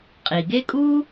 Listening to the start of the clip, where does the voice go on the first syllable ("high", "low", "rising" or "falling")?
low